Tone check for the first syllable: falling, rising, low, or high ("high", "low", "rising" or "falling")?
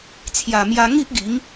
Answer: low